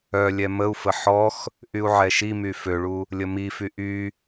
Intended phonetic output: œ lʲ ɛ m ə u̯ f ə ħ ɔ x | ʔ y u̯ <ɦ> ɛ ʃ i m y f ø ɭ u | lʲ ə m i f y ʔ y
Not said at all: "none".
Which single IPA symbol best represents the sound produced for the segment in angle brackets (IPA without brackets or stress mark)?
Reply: ʕ